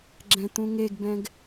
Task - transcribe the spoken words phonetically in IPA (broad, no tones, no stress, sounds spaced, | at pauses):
ɡ͡ǁ ɛ̃ t̪ ũ ŋ e ɡ b ɛ̃ ɡ